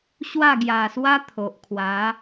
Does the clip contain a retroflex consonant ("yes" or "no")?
no